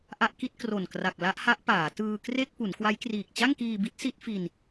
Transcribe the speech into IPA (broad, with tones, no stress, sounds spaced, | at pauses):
ʔ a˦˥ ʔ k i˦˥ t̚ k r o˨˩ n k r a˨˩ k̚ l a˦˥ ʔ h a˦˥ ʔ p aː˩˦ t ɯː˧ k r e˥˩ k̚ p u˩˦ n k w a˦˥ j k r iː˨˩ k̚ t͡ɕ a˥˩ ŋ k iː˧ b i˦˥ t̚ s i˦˥ t̚ f i˧ n